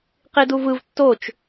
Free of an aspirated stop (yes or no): yes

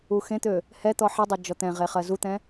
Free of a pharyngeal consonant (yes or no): no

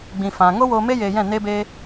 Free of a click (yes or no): yes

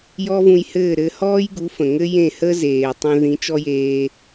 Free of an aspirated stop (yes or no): yes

